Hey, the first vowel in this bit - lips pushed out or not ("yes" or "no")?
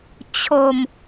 yes